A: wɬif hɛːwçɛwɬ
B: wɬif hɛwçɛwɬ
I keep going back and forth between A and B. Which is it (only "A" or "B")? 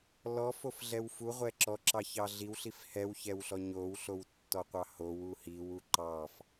B